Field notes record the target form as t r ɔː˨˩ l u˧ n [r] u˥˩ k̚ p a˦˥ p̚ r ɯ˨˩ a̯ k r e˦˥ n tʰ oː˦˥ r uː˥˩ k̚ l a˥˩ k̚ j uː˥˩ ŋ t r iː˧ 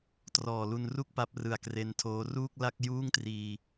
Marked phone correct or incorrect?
correct